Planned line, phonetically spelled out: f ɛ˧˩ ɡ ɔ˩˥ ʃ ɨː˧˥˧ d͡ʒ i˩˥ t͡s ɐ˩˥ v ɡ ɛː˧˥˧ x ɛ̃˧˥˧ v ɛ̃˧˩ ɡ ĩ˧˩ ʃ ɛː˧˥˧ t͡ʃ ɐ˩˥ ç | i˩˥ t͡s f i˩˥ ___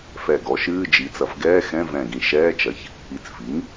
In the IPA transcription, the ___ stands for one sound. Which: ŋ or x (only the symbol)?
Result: ŋ